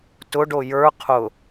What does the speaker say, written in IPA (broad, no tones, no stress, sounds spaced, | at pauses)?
t ʊ ɖ o j ə˞ qʰ ʊ